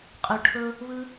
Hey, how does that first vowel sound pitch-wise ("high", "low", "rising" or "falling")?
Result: low